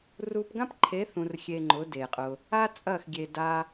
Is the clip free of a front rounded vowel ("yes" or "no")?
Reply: yes